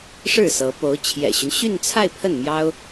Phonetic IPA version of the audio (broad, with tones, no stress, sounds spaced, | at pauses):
ʂ ɻ̩˥˩ s ɤ˧˥ p o˧˥ ʊ̯ t͡ɕʰ j ɛ̰˨˩ ɕ y˦ n ɕ y˥˧ n t͡sʰ a˥˧ ɪ̯ pʰ ə˥˩ n m j ɑ˥ ʊ̯